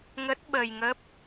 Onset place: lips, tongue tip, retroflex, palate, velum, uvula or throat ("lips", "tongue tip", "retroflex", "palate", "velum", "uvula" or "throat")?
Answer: velum